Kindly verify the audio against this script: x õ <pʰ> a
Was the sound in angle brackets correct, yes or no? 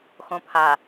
yes